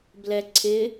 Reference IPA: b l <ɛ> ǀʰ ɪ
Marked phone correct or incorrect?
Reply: correct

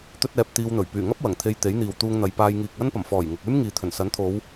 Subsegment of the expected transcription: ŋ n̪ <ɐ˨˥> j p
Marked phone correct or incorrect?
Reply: incorrect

